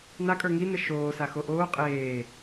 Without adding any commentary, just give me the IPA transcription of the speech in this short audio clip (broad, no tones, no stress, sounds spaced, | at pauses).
n a kʼ ə˞ ŋ i n ə ʃ oː s a x o ʔ oː qʼ eː